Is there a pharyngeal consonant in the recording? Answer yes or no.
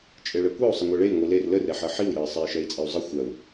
yes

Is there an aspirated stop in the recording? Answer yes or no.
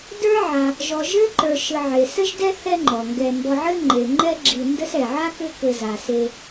no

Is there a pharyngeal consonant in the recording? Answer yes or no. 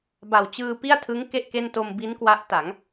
no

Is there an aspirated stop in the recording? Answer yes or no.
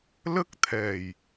yes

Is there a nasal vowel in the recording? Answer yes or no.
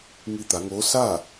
no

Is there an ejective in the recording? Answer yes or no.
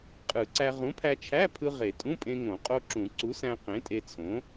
yes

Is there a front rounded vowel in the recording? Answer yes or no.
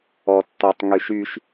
yes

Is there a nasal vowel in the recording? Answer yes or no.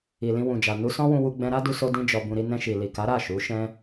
yes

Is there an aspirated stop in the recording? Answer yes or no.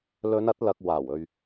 no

